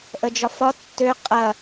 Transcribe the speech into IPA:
ʔ ə d͡ʒ ɒ f ɒ tː ø qʼ ɐ

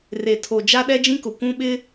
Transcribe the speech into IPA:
r e˨ tʰ o˨ d͡ʒ a˦ ɗ ɛ˦ d͡ʒ ĩ˦ k ʊ˨ kʷ ũ˦ ɓ ɪ˦

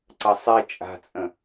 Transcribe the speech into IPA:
ǀ ɐ sˤ i t͡ʃʼ a̤ t͡sʼ ə̃

